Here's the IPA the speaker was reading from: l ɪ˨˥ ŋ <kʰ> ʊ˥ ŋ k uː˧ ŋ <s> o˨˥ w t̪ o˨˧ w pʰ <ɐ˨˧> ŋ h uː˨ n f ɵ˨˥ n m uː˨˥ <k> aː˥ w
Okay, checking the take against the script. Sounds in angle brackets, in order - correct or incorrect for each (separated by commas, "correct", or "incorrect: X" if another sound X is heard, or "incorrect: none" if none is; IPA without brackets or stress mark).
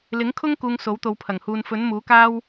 correct, correct, incorrect: ɐ˨˩, correct